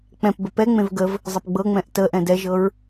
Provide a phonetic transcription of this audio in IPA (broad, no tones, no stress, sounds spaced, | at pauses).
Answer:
k͡p ɛ̃ p b ə p ɛ ŋ͡m ẽ v ɡ ə v | zˤ ɘ p ɡ͡b ɤ ŋ͡m ɛ̃ ʔ t ə ʔ ɛ̃ d ɛ ʒ ɤ ɹ